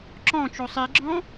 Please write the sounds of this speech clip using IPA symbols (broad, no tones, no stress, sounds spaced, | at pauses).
ǁ ɔ̃ t͡ʃ o sˤ i ɡ͡ǁ ɔ̃